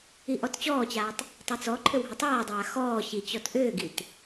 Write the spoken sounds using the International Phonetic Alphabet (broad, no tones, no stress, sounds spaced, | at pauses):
i ʔ ɔ t t͡ɕ ɔː t͡ɕ aː tˤ | tˤ i t͡s ɔ ǃʰ ʏ w ɦ ʏ tˤ aː dˤ aː x ɔː ɕ i t͡ɕ ɔ t ʔ ʏː ɡ i t